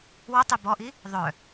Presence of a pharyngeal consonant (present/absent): absent